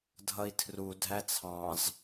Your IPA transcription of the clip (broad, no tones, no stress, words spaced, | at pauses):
dʱʌi̯tʰru dʱæt͡sʰɑ̃z